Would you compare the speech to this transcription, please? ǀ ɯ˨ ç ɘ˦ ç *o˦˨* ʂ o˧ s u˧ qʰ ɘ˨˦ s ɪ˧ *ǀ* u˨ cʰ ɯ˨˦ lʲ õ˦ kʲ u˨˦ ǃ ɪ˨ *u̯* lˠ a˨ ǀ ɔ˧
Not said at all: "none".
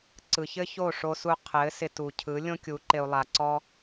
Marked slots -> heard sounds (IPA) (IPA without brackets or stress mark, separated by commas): o˦˨, t, u̯